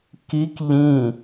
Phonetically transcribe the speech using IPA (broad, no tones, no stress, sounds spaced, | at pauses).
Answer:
k i k ʎ ĩ